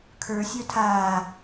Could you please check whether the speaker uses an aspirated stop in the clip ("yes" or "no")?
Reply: yes